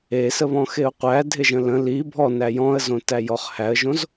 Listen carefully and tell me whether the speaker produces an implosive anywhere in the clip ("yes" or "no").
no